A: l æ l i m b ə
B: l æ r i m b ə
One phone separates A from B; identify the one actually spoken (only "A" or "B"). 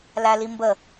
A